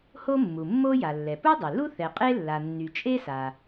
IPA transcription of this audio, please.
h o˥ mː u˩ mː o˥ j a˩ lː ɛ˩ p u˥ dˤ e˩ l u˥ θ ɛ˩ qʼ e˥ lː a˩ nː y˩ t͡ʃʼ e˥ s a˩

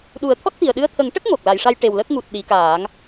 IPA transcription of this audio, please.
ɗ u˨˩˦ ə̯ t̪ʰ ɔ˦˥ t̚ t̪ i˨˩ ə̯ ɗ ɨ˧ ə̯ t̪ʰ ə˨˩˦ ŋ ʈ ə˦˥ k̚ ŋ o˨˩ k̚ l a˨˩˨ j ʂ a˧ j ʈ e˨˩ w l ə˦˥ k̚ ŋ u˨˩ t̚ ɗ i˨˩˦ k aː˨˩˦ ŋ

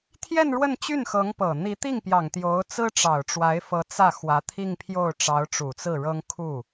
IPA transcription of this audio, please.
t̪ʰ j ɛ˥˧ n ɻ w ə˥˧ n t͡ɕ y˥˩ n x ɤ˧˥ ŋ p ɤ˨˩ n̪ i˧˥ t̪ i˥˩ ŋ p j ɑ˨˩ ŋ t̪ j o˧˥ ʊ̯ t͡s ɹ̩˥ ʈ͡ʂ ɑ˨˩ ʊ̯ ʈ͡ʂ w a˧˥ ɪ̯ f ɤ˧˥ t͡s ä˥˩ x w ä˧˥ t̪ʰ i˥˧ ŋ pʰ j o˥˩ ʊ̯ ʈ͡ʂ ɑ˧˥ ʊ̯ ʈ͡ʂ u˨˩ t͡s ɹ̩˥˩ ɻ ɤ˥ ŋ kʰ u˥˩

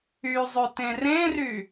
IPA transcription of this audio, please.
y zˤ ø t ẽ r ẽ r y

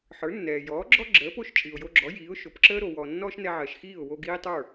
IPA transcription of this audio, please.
ħ ə˞˩˥ nː ɛː˩ j ɔː˩˥ ɡ͡ǁ ɔ˥ ɡ͡ǁ əː˩˥ p o˥˩ ʃ t͡ʃʼ i˩ ʊ̯ j o˧ ɡ͡ǁ ɔ˩˥ j iː˩˥ ʊ̯ ʃ o˩ p ǁ əː˥ ɾ o˩ w ɔ˩ nː ɔː˥ ʃ n ɛ˧ ʕ ɜ˩ ʃ x iː˥˩ ʊ̯ w o˧ ɡ iː˥ tˤ ə˞˥˩

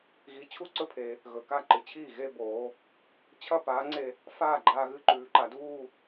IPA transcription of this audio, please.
ɣ i˨˥ t͡ɕʰ u˥˧ ǀ ɵ˥˧ pʰ e˩˧ | ɣ ɵ˩˧ k a˥˩ ǃ ɨ˩˧ t͡ɕʰ iː˥˩ ɣ e˥˧ b oː˩˧ | t͡ɕʰ ɐ˥˧ p aː˨˥ ŋ͡ǀ e˧ | f aː˥˩ ɡ͡ǃ aː˧ ɣ ɨ˧ ǃ ʉː˩˧ ǃ a˩˧ d uː˥˧

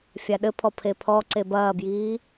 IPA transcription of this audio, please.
fʲ a ɗ ɘ pʰ ɔ pʰ e pʰ ɔ ǀ e b ɐː b j iː

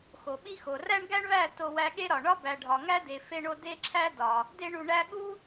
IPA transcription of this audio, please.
x o˨ ɓ i˦ x o˨ r æ˦ ɳ ɡ æ˦ ɳ β æ˦˨ t o˧ w æ˧ ɠ e˦ ɾ ɒ˨ ɳ ɒ˦ b æ˨ ɖʱ ɒ˨ ŋ æ˦ d e˨ f e˧ ɳ o˧ d e˦ ǁʰ æ˦ d ɒ˨ | d e˧ ɳ u˨ ɳ æ˦ ɠ u˦

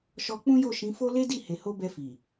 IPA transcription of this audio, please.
ʃ ɔ˧ k͡p ũ˦ j o˦˨ ʃ ĩ˨˦ f o˦ l e˦ d i˦˨ h e˨ h o˧ b ɛ˧ f i˨

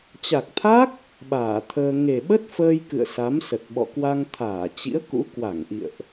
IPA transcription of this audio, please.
t͡ɕ a˨˩ k̚ t̪ʰ a˦˥ k̚ | ɓ aː˧˩ t̪ʰ əː˧ ŋ e˨˩ ɓ ə˦˥ t̚ f əː˧ j k ɨ̰˧˨ ə̯ s a˨˦ m s ə˨˩ t̚ ɓ ɔ̰˧˨ k w a˧ ŋ t̪ʰ aː˧˩ t͡ɕ ḭ˧˥ ə̯ k ṵ˧˥ k w a˧˩ ŋ ʔ ḭ˧˨ ə̯ ʔ

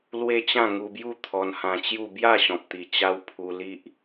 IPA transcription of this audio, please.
l w e˦ t͡ɕ ã˥˧ ŋ u˧ b j u˥˧ t̪ʰ ɔ˧ n h ã˧ t͡ɕ j u˥˧ b j a˥˧ ɕ ɔ̃˨ p̚ t̪ i˨˩ t͡ɕ a˦ w pʰ u˧ l i˦ ʔ

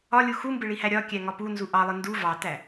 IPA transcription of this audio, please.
ɒ lʲ u x u m b ɪ ɭ i h æ ɾʲ ɒ kʲ æ ŋ ɒ p u n z u ʔ ɑ lˠ ɪ n d u v ɑ t æ

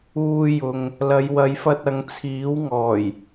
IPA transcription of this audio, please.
uː˧ j ʊ˨ ŋ | l ɐ˨˧ j w ɐ˨˧ j f ɐ˧ t̚ ɐ˨˧ ŋ t͡sʰ iː˨˥ w ŋ ɔː˨˩ j

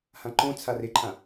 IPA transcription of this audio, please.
h ã ǃ õ t͡sʰ a r ɪ ǃʰ ã

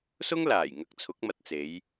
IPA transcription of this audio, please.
s ʊ˥ ŋ l aː˨˩ j ŋ ɐ˧ k̚ t͡sʰ ʊ˨˥ k̚ m ɐ˨ t̚ t͡s e˨˧ j

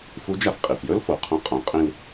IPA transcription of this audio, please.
f u˧˥ d͡ʒ a˧ f qʼ i˩ f j ɵ˥ l f o˩ qʰ ɐ̃˧˥ qʼ õ˩˧ qʼ ĩ˧ l

